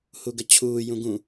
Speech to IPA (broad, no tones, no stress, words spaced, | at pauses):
huɡət͡ɕʰuː jũɡũ